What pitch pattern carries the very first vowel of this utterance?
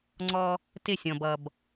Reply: high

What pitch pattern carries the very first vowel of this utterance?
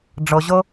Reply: low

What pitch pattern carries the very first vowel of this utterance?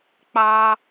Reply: high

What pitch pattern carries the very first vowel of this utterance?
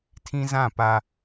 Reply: high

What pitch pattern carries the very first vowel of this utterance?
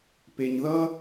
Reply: low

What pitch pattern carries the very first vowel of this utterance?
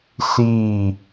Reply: falling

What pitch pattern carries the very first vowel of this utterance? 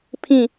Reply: falling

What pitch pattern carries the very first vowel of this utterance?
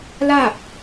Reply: falling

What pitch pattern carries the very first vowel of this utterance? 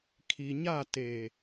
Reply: low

